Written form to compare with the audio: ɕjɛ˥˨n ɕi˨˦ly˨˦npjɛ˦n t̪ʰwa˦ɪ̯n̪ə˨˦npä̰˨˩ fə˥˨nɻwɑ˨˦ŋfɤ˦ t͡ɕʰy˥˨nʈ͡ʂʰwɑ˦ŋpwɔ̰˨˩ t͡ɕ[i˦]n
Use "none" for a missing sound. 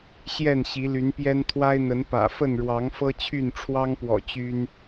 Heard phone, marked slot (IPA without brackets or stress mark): y˦